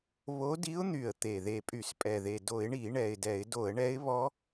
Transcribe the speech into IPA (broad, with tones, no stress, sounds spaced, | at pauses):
β o˧˥ d i˧˥ ʊ̯ n̪ y˨˩ ə̯ t̪ e˨˩ ð e˨˩ pʼ y˧˩˧ s pʼ ɛ˨˩ ð e˨˩ d o˧˩˧ ɪ̯ ɳ i˧˩˧ ɳ ɛ˨˩ ɪ̯ d ɛ˧˩˧ ɪ̯ d o˧˩˧ ə̯ ɳ ɛ˧˥ ɪ̯ β ɔ˧˥